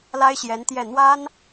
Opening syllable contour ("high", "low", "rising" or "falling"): high